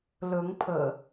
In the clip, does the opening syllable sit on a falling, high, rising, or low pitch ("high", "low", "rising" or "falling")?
rising